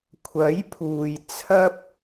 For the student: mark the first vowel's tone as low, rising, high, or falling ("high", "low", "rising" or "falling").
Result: rising